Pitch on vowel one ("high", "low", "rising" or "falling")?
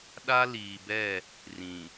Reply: high